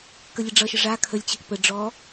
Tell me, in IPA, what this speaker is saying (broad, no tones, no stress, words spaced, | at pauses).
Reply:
kəlʲəɖ͡ʐʌʃə ʐa kʰəlʲt͡ɕʌk pə ɖ͡ʐɔ